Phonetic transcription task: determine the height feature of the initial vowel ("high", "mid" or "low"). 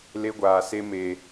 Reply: mid